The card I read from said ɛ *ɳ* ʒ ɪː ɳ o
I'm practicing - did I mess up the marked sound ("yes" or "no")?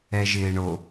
yes